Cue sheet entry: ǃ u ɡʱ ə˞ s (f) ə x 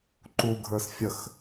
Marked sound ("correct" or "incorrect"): incorrect